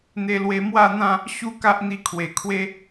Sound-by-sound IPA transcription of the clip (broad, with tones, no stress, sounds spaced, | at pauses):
n̪ e˧ l w e˧ m w a˥˧ n̪ ã˥˧ | ɕ u˦ k a˦ ʔ n̪ i˧ kʰ w e˨˩ kʰ w e˦